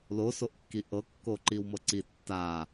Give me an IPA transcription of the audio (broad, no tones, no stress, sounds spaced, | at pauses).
l o s o ʔ kː i ʔ ɤ kː o ǃ i w m ɤ ǀ i tː a